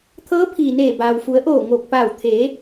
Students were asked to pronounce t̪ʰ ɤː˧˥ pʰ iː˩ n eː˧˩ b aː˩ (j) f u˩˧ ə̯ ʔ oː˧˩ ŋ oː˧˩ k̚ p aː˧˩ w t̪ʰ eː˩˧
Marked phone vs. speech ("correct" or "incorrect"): incorrect